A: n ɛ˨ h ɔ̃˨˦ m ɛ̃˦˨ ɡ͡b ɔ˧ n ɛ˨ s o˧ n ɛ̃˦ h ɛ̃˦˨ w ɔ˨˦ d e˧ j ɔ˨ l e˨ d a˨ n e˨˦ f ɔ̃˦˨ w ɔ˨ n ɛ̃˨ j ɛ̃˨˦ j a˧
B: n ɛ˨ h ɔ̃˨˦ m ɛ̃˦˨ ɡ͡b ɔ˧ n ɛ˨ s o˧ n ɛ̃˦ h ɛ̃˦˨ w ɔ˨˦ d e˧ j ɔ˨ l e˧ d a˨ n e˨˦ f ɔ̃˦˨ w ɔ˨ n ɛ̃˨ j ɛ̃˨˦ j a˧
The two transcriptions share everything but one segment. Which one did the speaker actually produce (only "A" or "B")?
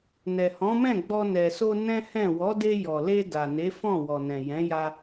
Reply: B